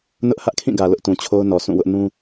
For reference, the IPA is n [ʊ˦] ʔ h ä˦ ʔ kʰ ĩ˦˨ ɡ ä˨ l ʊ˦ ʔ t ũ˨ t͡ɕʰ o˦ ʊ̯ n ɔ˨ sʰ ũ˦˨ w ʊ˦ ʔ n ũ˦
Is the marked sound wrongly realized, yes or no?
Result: no